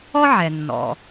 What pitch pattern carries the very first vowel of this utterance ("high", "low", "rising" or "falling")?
high